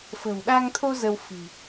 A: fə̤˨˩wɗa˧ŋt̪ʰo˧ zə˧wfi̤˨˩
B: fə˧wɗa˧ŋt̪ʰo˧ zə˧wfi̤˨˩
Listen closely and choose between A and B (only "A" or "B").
A